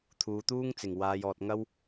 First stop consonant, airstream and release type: aspirated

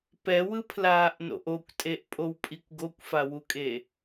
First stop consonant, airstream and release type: plain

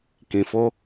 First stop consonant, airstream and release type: plain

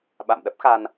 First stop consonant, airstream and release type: implosive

